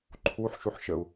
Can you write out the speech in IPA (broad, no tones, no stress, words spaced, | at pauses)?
ǃʰuħ ʃuħʃəu̯